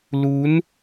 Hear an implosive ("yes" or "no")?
no